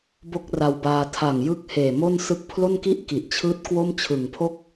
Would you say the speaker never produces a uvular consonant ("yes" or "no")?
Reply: yes